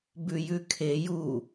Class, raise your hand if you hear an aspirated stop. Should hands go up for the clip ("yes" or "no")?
yes